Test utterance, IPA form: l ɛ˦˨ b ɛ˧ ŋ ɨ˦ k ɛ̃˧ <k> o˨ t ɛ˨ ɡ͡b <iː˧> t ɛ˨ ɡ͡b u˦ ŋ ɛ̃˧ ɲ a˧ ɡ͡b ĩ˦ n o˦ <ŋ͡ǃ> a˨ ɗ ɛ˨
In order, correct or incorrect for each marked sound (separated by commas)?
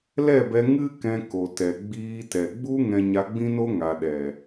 correct, correct, incorrect